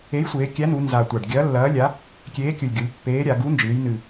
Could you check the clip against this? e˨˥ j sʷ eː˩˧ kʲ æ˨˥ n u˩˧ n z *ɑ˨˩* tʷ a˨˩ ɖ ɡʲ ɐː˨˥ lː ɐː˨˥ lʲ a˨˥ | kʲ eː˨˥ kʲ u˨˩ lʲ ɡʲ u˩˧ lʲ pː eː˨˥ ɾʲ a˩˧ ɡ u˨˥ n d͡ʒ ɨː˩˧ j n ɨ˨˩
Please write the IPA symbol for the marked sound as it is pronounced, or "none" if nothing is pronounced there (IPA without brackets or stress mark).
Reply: a˨˩